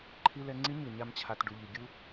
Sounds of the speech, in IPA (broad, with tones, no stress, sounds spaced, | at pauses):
ǃʰ i˧ l ɛ˧ ŋ͡ǀ i˦ ɲ ɯ˨ ɲ a˦ m t͡ɕʰ a˧ t ɖ u˨ ʎ i˨ ɡʲ u˦